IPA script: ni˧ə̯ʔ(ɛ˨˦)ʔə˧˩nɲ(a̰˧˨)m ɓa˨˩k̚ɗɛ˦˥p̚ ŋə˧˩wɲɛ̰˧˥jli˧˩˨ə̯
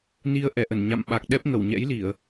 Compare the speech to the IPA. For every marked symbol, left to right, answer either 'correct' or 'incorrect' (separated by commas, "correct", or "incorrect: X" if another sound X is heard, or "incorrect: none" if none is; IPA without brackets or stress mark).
incorrect: ɛ˧˩, correct